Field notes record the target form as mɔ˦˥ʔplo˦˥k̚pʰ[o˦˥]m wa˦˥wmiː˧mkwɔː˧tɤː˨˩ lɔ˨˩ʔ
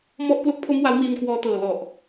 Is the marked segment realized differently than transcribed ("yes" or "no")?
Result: no